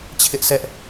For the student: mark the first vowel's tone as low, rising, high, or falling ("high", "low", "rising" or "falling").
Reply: high